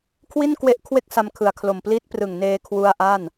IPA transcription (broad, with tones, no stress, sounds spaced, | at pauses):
kʰ w i˥˩ n k w e˦˥ ʔ kʰ w e˥˩ k̚ s a˧ m kʰ ɯ˩˦ a̯ kʰ l o˨˩ m p l i˦˥ t̚ p r ɯ˨˩ ŋ n eː˧ kʰ w u˧ a̯ ʔ a˥˩ n